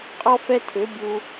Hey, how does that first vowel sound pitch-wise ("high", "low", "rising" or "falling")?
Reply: high